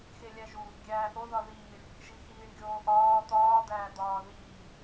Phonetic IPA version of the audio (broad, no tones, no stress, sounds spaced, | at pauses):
x e lʲ æ ʒ u | ɡʲ æː ʔ o ð ɒ ð iː ɳ | ʒ i x iː ɳ ɡʲ oː ʔ ɒː t̪ ɒː d̪ æː d̪ ɒː ð iː